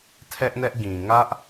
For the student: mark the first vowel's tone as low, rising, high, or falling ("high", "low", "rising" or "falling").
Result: high